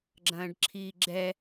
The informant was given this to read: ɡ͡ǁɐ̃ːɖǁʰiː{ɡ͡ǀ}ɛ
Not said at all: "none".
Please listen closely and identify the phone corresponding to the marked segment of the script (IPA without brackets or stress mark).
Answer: ɡ͡ǁ